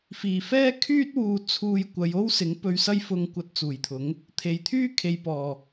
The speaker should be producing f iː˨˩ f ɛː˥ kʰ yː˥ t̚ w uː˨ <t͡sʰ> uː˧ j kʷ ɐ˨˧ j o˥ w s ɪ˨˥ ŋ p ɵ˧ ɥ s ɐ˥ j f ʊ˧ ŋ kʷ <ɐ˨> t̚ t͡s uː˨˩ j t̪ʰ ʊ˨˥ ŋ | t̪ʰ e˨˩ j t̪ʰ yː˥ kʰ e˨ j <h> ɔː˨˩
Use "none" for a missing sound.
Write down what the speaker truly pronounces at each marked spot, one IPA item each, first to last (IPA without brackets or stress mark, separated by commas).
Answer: t͡sʰ, ɐ˧, p